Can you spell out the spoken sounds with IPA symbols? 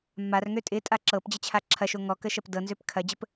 mː a r ŋ ø tʼ ɪ tʼ a ǁ ɤ p d͡ʑ ə t͡ɕʰ a ǁʰ ɐ ʃ o ŋ ɔ k ə ʃ ɐ p d ɤ n z ø p kʰ ɐ d͡ʑ ə p

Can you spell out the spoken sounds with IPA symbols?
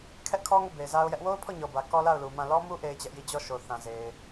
kʰ ɛ˦ ʔ kʰ ɔ˦ ŋ o˦˨ b e˨ ɪ̯ z a˦ ʊ̯ j ɛ˦ ʔ w o˦ ʊ̯ pʰ ɔ˦˨ ɲ ɔ˨ b ä˨ k ɔ˦ l a˦˨ ʊ̯ l u˨ m ã˦˨ l ɔ˦ m u˦ ʔ e˦ ɪ̯ t͡ɕ ɛ˦ ʔ j i˦˨ d͡ʑ ɔ˦˨ ʃ o˨ θ ã˨ z e˨ ɪ̯

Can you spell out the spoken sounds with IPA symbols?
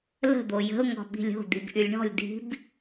l ə̤ d̪ o j ə̤ ʊ̯ ŋ ɔ̤ ɓ i̤ lʲ o̤ d̪ i b ʔ y lʲ ɳ ɔ̤ lʲ d i̤ b

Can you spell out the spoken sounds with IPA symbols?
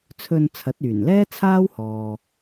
t͡sʰ ɵ˧ n t͡sʰ ɐ˨˥ t̚ yː˨˩ n l ɛː˥ t͡sʰ aː˥ w h ɔː˨

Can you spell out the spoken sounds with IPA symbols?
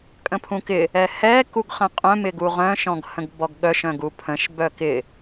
kʼ ə̃ pʰ ũ k ɪ | ɛ h ɛ k u ɡ χ ə̃ qʼ œ̃ m ɪ ɡ u ʁ œ̃ ʃ ɔ̃ ɡ h ə̃ ɡ b ɔ ɡ ɠ œ ʃ œ̃ ɡ u pʰ ə̃ ʃ b œ k ɪ

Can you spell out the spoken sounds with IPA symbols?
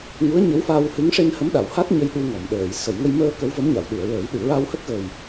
ŋ u˧˥ ə̯ ɲ ə˧˥ w f a˧ w h ɨ˧˥ ŋ ʂ e˧ n h ə˧˥ m ɗ a˨˩˨ w h a˦˥ t̚ ɲ ə˧ j ɗ u˧ ŋ ɔ˨˩˨ m ɗ əː˨˩˨ j s ə˨˩˨ j ŋ ə˧ j m əː˧ k ə˧˥ w v ə˧˥ m ɲ a˨˩˨ w ɗ u˨˩˨ ə̯ ɹ əː˨˩˦ j ɗ ɨ˨˩˨ ɹ a˧ w h ə˦˥ k̚ ɣ ə˨˩ j

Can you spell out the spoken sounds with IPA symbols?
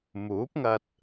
m uː˨˥ p̚ ŋ ɐ˧ t̚

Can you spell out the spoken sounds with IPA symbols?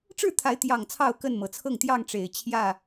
ʈ͡ʂ ɻ̩˥˨ t̪ʰ a˨˦ ɪ̯ t̪ j ɑ˨˩ ŋ t͡sʰ ɑ˥˨ ʊ̯ k ə˥˨ n m ɤ˨˩ t͡sʰ ɤ˥˨ ŋ t̪ j ɑ˥˨ ŋ ʈ͡ʂ e˨˩ ɪ̯ t͡ɕʰ j ä˥˨

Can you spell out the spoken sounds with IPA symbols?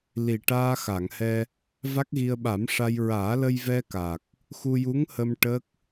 l i˨˩ ʈ aː˧ x a˨˩˨ ŋ h ɛ˧ | v a˦˥ k̚ ɣ i˧ ə̯ ɓ a˨˩˦ m ʂ a˧ j ɹ aː˨˩˦ l ə˧ j v ɛ˧ k a˨˩ k̚ | x u˧ j u˧˥ ŋ h ə˧ m ʈ ə˦˥ k̚

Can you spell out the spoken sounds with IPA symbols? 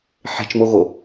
ħ e̤ t͡ʃ m o ɣ o

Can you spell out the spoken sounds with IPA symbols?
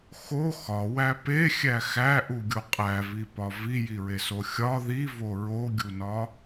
x o x ɒ w æ p e xʲ æ x æ ʔ u ɡʲ o qʼ æ v i p ɒ v i j i ɹ e s o xʲ ɒ ð i v o ɹ o ɡʲ u n ɒ

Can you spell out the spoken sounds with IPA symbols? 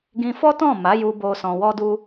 ɡ ĩ˧ f ɔ˦ t ɔ̃˦˨ m a˨˦ j u˧ b o˧ s ɔ̃˧ w ɔ˦ d u˦

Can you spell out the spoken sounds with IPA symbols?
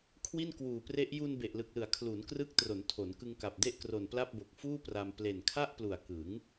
kʰ w i˥˩ n k w uː˨˩ p r e˦˥ ʔ j u˧ n b e˨˩ ʔ l ɯ˨˩ k̚ l ɯ˩˦ a̯ kʰ l u˩˦ n k r ɯ˦˥ k̚ t r o˩˦ n tʰ o˩˦ n k ɯ˧ ŋ k a˨˩ p̚ d e˥˩ ʔ k r o˨˩ n p l a˥˩ p̚ b o˨˩ k̚ f uː˥˩ p r a˧ m p l e˨˩ n kʰ a˥˩ ʔ p l u˨˩ a̯ k ɯ˩˦ ŋ

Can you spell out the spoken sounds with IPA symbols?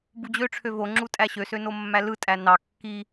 b u d͡ʑ ø ʈ͡ʂʰ ø v o ŋ͡ǁ u tʼ æ ɕ ø s ø n o mː æ l ɯ tʼ æ n ɑ kː i

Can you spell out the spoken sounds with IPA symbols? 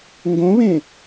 ŋ ɡ õ β ẽ

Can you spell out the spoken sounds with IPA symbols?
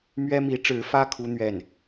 m ɥ ɛ˥ m i˧˥ ʈ͡ʂ ɻ̩˧˥ f ä˥ kʰ u˥ n̪ ɥ ɛ˥˩ n

